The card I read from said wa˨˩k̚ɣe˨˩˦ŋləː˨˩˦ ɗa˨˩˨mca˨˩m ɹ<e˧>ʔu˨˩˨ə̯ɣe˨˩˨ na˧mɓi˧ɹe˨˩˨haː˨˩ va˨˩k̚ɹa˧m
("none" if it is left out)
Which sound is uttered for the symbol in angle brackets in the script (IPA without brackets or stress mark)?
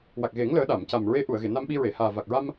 e˧˥